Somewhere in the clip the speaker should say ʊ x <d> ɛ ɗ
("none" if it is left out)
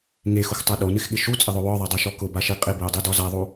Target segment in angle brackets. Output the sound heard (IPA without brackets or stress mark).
tˤ